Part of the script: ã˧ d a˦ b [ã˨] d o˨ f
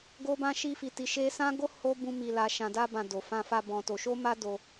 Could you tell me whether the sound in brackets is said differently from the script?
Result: yes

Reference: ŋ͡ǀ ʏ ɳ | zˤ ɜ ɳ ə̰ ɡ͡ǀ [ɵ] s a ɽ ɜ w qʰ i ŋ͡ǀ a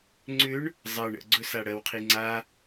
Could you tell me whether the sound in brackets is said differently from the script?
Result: no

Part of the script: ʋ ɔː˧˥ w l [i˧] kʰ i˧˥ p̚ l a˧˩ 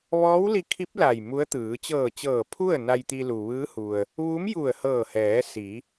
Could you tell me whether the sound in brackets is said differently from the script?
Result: no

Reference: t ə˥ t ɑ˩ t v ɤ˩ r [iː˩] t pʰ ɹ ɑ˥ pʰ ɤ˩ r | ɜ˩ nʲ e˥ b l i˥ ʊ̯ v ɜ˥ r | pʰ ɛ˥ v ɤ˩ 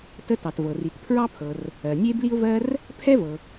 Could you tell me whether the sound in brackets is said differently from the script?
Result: yes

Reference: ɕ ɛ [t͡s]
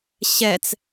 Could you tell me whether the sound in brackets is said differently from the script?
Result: no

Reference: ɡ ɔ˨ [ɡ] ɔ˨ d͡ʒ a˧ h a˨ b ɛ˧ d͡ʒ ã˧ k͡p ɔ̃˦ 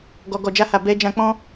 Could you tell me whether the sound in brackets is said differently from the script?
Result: no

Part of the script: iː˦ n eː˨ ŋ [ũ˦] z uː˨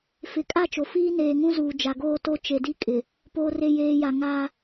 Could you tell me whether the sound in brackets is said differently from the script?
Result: no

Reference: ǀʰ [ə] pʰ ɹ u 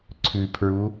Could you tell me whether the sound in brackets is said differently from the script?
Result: yes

